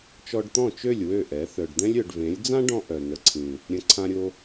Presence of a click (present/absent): present